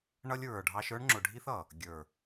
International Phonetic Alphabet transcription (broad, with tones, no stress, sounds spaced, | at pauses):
ɳ ʌ˦ lʲ ɹ ə˞˨ ɖʱ ɑ˦ ʃ ə˞˦ ɳ ŋ͡ǁ ʊ˨ ɖʱ i˦ θ ʌ˨ | ɡʲ ə˞˨